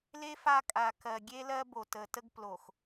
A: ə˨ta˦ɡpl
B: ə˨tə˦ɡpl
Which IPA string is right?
B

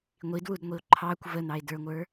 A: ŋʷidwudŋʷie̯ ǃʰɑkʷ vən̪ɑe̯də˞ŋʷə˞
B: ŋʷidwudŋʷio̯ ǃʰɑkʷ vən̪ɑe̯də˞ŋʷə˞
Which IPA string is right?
B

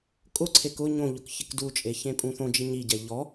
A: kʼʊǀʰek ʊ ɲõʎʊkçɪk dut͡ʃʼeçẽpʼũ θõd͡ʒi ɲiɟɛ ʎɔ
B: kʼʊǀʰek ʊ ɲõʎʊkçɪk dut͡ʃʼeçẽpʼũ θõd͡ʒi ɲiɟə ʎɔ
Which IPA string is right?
A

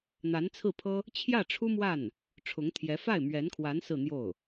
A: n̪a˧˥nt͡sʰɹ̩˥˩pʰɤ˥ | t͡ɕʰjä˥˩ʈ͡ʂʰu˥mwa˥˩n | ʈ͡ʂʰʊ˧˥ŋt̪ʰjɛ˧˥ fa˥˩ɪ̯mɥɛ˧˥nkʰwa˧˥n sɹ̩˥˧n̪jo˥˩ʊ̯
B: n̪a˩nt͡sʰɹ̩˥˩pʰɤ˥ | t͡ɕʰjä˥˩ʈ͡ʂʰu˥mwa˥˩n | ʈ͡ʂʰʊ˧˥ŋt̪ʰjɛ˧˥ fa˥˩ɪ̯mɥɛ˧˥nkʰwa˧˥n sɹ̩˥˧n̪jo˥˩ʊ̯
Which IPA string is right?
A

